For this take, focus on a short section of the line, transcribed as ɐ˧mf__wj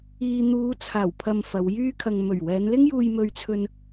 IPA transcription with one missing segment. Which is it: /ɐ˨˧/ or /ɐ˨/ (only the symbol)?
ɐ˨˧